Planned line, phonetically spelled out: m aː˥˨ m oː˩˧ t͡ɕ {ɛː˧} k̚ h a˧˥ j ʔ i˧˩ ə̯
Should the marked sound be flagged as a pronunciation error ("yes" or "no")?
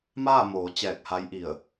yes